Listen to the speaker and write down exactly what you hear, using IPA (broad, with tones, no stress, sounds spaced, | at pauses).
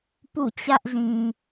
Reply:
p ṵ˦˨ t͡ɕ ä˦ ʔ z ĩ˨